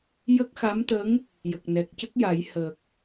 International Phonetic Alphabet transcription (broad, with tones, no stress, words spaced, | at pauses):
jə˦˥k̚xa˧˥mt̪ə˧˥ŋ | jə˨˩k̚nɛ˨˩k̚cə˦˥k̚ ja˨˩˦j hə˨˩k̚